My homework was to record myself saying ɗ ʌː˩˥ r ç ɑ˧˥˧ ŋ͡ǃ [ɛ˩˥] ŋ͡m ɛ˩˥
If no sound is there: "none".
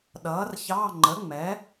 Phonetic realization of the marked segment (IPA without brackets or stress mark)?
ə˩˥